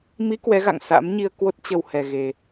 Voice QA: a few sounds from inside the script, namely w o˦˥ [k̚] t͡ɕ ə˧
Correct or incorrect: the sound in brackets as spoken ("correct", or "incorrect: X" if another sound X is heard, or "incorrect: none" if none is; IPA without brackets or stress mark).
incorrect: t̚